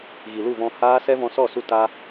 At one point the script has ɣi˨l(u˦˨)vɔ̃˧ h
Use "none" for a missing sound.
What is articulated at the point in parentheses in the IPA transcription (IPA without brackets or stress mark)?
u˦˨